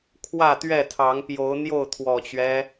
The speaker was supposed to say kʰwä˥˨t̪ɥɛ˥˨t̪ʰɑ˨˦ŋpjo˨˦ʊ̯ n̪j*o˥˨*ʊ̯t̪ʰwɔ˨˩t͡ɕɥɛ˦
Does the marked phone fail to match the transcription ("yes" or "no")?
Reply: no